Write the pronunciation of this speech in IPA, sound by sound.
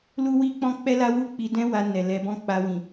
lu˦wi˦k͡pɔ̃˦ k͡pɛ˦la˦wu˦˨k͡pi˧ dɛ̃˦wa˧ nɛ˨lɛ˧bɔ̃˦ k͡pa˧wĩ˨

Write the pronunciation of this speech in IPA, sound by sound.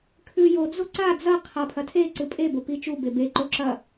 kʰʉjod͡zo ǀa d͡zɐ qʰapʰɐtʰeǀɨ pʼebo pit͡ʃube beǃo ǁɐ

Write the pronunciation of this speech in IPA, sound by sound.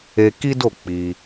e˧ki˦do˦˨ k͡pi˧

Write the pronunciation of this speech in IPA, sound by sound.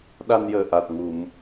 ɗa˧njəː˨˩ ʔa˨˩t̚ŋu˨˩˨m

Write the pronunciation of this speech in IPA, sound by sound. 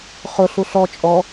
χʊɬu ɬɔ t͡ʃʼɔ

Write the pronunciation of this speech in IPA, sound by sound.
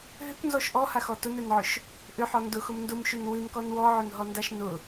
ɦʏknzɔʃ ʔɔhaxɔ tʊnɛnʕʊʃ | ʔʏħɔ ndʊxʊm ndʊmʃʉn wʉnkɔn wɔʕʊnɦɔndaʃ nʊ

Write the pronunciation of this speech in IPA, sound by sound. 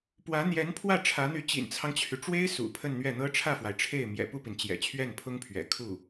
pwä˧˥n̪jɛ˧˥n pʰwä˥˩ʈ͡ʂʰä˧˥n̪y˧˥ t͡ɕḭ˨˩nt͡sʰɑ˦ŋt͡ɕʰy˩ ʈ͡ʂwe˥ɪ̯ sṵ˨˩ pʰə˥˧nn̪ɥɛ˥˩n̪ɤ˥ ʈ͡ʂʰä˥˩fwa˩ɪ̯ʈ͡ʂʰe˥˩ɪ̯ mjɛ̰˨˩pu˥˩pi˩n t͡ɕjɛ̰˨˩t͡ɕʰɥɛ˥˩npʰʊ˥ŋpʰɥɛ̰˨˩ kʰu˥˩

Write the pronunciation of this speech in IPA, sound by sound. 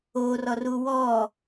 o rɔruwɔ

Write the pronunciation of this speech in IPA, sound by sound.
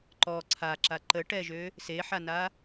ǃɔ ǀʰaǁa ǃəʈɛʒø | seħana

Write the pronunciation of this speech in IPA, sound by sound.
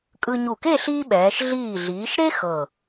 kʼɯ˧ɲu˧˩ke˥˧ ɬiː˥ɓɛː˩˧ʃ ɮiː˧˩ɮiː˩˧ʃɾe˥ xɤ˧˩

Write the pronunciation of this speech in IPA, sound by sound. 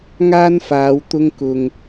ŋaː˥nfaː˨˧w t̪ʊ˥ŋkʊ˧ŋ

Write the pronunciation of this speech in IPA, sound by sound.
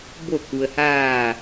bo˧˩ku˩ə̯haː˧˩

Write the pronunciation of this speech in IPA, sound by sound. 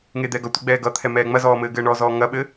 ŋed̪ɛɡʌ tʷeɡ͡bɛːɡʌt̪ʰɛ mɛːŋ͡mɐzɔː mɘːɡɘːɳɔ zɔːŋɐɓɘ

